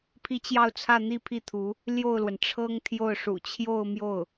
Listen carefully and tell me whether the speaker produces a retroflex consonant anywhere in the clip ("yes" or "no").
yes